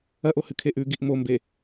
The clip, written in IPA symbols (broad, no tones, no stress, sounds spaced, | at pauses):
ɐ ʔ o h ɨ kʰ e ʔ ʉ ɡ i ʔ m o m b e